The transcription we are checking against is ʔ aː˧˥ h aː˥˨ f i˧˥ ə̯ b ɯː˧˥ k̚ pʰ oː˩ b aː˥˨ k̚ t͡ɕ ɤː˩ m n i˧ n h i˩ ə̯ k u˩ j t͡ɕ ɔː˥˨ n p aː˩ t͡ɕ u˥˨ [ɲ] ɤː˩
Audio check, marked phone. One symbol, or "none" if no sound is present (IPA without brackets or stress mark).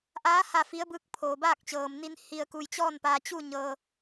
ɲ